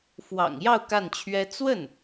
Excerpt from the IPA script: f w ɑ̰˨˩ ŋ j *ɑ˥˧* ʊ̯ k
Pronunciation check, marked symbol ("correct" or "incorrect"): correct